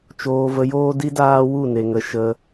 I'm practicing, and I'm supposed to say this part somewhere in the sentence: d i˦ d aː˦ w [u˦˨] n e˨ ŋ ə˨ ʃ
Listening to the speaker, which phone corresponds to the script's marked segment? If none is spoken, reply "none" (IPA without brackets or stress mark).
u˦˨